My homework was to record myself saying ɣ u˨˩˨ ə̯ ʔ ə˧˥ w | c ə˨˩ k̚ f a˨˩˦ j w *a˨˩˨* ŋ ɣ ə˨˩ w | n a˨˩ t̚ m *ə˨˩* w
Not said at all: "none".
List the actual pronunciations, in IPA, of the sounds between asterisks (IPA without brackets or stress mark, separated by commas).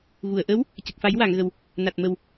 a˨˩˨, ə˨˩